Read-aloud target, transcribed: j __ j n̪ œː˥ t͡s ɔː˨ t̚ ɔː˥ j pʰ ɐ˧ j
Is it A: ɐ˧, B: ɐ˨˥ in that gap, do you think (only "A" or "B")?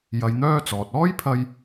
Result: A